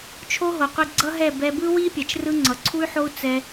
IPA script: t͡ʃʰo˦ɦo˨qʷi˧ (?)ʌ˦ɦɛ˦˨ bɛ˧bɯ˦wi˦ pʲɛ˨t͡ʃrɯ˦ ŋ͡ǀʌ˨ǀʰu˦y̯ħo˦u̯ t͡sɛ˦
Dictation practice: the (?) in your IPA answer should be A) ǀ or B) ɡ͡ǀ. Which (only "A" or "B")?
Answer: B